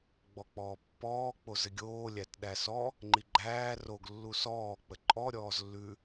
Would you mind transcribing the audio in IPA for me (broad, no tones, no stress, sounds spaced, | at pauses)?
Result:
ɡ͡b ɔ k͡p ɔː pː ɔː k͡p o z ɘ ɡʲ oː lʲ æ t ɗ æ s ɔ | ŋ͡ǃ i ɡ͡ǃ æː r o ɡ lː u s ɔː k͡p ə ǃʼ ɔ ɾʲ ɔː z lː ʉ